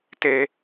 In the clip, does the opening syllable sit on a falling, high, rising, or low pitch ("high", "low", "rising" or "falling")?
high